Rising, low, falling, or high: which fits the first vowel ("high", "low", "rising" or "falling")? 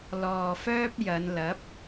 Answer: low